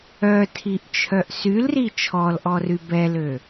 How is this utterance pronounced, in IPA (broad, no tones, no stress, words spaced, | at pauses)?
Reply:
œtʰiʔt͡ʃʰœʔ sylri t͡ʃʰɔlʔɔry bɛlø